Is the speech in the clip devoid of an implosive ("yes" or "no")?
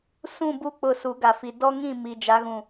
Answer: yes